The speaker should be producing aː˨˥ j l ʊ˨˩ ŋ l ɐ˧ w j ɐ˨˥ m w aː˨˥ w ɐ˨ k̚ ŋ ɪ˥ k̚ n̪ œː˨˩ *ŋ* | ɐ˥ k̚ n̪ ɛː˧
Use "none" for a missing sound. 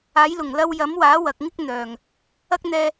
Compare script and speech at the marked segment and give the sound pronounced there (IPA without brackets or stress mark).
ŋ